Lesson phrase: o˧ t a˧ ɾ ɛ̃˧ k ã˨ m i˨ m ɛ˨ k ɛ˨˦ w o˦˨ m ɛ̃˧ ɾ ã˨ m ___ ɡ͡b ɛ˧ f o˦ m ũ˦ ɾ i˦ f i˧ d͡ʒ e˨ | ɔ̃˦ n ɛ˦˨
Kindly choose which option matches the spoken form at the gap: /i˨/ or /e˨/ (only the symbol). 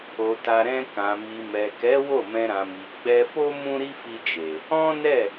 i˨